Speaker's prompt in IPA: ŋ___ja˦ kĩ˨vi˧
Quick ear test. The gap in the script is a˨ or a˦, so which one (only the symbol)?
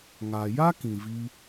a˨